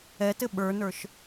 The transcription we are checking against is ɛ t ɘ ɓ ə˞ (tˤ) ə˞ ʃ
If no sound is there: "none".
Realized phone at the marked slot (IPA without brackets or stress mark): n